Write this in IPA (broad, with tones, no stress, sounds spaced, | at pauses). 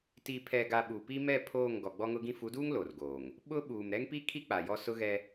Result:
t i˨ pʰ ɛ˨ ɡ a˨ ɓ u˨ p i˦ m ɛ˦˨ pʰ oː˦˨ ŋ ɡ ɔ˨ ɡ͡b ɔ˦ ŋ ʊ˦ ɡ ĩ˦ f u˨˦ d uː˦ ŋ l o˨ r ɡ oː˨ ŋ | ɓ ʊ˦ ɓ uː˨ m ɾ ɛ˦ ŋ p i˦ kʰ i˦ k͡p a˨ j ɔ˦ s ʊ˦ ɣ ɛ˦